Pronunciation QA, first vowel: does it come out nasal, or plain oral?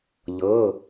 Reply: oral